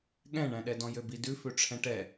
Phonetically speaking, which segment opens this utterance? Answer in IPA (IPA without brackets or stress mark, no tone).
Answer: ɠ